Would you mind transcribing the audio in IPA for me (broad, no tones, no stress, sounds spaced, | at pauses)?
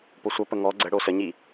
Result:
p o sʷ ʌ p ə ŋ ɔ ɡ͡ǀ ə ɽ o s ə ɲ i